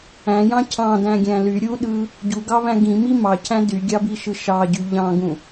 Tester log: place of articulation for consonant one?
palatal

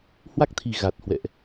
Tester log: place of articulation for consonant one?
glottal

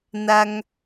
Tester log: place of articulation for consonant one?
alveolar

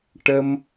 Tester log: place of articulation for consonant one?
retroflex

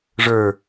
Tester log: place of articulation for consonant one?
retroflex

